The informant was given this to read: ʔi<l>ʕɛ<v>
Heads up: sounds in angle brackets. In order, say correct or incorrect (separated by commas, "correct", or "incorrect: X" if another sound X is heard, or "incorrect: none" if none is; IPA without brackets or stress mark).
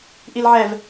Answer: correct, correct